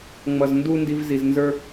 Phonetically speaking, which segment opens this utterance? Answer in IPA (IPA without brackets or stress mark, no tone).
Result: ŋ͡m